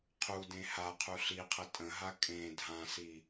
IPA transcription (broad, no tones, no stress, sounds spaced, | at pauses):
qʰ u d ẽ h a qʰ u ɬ i qʰ ə tʼ ə̃ ɦ a kʼ ẽ dʱ ã s i